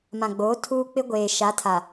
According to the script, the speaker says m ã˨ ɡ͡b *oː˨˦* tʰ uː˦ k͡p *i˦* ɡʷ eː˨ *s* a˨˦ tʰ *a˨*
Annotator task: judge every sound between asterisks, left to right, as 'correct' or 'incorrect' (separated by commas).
correct, incorrect, incorrect, correct